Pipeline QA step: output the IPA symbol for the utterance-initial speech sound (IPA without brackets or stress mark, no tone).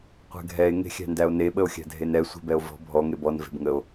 qʷ